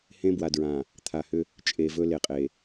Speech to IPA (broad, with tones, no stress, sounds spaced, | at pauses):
h ẽ˦ b w a˨ d ɹ ã˨ | t̪ʰ a˨ h ʏ˦ | t͡ʃʼ e˨ v ɵ˦ l e˨ qʼ e˨